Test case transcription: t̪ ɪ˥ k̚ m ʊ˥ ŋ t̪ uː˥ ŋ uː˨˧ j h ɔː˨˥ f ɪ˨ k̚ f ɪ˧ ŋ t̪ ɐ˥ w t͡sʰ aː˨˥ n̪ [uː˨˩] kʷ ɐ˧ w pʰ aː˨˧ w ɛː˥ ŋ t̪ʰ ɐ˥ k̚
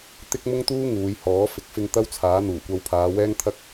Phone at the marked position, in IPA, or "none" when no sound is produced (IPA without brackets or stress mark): uː˨˩